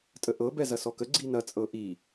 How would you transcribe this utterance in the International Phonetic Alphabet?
tʼ ə ʔ ɤ b ɛ z ɐ s ɔ k ə ɡ͡ǀ i n ɐ t͡sʼ ɤ ʔ i

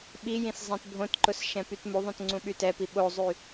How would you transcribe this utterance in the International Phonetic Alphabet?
ɓ i j ĩ s zˤ ĩ t bʱ õ t ǃ ʊ s ʃ ɛ̃ p y t m u ðˤ ũ t ŋ͡ǀ ũ ɓ y t ɛ p i ɓ o zˤ y

